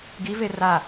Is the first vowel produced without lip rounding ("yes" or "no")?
yes